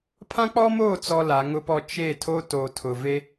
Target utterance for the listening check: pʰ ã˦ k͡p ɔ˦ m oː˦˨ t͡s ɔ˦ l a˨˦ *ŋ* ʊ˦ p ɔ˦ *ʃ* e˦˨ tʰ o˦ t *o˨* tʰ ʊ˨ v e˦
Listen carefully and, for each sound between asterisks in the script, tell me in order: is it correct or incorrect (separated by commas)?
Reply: correct, incorrect, correct